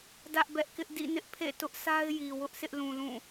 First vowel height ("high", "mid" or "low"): low